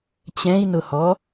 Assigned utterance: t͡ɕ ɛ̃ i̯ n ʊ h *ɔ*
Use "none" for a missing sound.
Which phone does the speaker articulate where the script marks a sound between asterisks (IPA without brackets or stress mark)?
ɔ